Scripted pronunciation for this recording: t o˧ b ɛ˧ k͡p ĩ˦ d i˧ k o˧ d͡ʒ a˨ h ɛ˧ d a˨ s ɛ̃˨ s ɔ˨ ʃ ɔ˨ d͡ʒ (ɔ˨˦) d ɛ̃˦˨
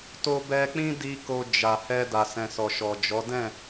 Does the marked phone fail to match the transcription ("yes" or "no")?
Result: no